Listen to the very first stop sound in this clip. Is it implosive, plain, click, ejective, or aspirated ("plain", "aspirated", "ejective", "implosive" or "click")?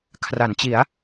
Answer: aspirated